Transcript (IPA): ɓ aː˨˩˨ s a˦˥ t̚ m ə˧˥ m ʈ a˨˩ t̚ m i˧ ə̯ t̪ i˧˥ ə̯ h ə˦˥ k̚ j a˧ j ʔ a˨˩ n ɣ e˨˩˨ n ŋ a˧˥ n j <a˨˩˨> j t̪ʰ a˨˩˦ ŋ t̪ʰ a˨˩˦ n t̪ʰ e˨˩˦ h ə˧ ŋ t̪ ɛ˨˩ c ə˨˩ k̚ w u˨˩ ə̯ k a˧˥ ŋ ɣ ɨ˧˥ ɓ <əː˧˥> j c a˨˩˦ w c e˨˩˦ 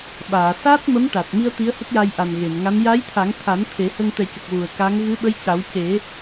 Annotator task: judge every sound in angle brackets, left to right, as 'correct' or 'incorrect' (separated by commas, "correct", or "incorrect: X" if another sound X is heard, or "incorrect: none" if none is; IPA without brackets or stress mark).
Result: incorrect: a˧˥, incorrect: ə˧˥